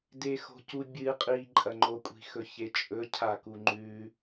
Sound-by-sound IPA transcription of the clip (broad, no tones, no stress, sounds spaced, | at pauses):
d e x o̤ c u bʲ ɨ qʼ i ǃʼ ɐ ŋ͡ǃ o kʷʼ i̤ x ɵ ç e t͡ʃʼ ɵ cʰ a k u ŋ͡ǃ ʉ